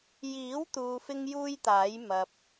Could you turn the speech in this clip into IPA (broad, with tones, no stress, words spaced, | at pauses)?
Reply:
jiː˨˥wt̪uː˨ fɪ˥ŋjuː˥jt̪aː˨˥j mɐ˨p̚